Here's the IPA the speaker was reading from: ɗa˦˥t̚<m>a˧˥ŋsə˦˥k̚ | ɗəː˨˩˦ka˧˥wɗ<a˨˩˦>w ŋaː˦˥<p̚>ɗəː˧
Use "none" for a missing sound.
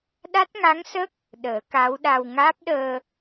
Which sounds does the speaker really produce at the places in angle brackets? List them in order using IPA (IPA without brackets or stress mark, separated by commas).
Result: ŋ, a˧, p̚